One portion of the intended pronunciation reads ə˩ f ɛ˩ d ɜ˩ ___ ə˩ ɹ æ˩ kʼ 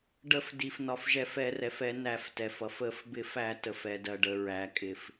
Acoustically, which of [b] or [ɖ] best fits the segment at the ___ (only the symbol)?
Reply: ɖ